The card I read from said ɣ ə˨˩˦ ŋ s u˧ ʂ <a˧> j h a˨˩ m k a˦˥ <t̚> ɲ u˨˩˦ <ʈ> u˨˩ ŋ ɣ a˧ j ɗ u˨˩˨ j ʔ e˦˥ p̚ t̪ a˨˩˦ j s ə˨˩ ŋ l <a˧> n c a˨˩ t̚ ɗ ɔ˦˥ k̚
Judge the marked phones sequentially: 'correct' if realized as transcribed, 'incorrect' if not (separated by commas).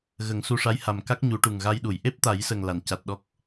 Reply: incorrect, incorrect, correct, incorrect